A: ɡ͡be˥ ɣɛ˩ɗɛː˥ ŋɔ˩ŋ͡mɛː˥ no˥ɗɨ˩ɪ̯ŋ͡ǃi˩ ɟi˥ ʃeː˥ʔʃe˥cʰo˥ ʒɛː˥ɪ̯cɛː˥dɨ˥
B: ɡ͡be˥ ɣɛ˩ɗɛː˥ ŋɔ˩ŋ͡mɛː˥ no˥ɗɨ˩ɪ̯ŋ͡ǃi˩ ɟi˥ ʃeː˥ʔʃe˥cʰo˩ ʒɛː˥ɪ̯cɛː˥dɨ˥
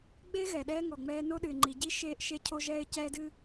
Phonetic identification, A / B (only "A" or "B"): A